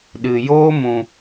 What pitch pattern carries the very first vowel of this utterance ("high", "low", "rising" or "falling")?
low